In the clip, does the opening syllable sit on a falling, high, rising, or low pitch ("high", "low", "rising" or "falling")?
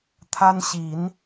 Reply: high